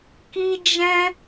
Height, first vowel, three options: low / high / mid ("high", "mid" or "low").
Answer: high